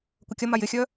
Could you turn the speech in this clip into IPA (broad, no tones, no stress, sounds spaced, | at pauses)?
kʷ ɐ kʲ ɐ m a j ɪ xʲ œ